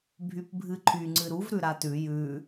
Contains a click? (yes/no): yes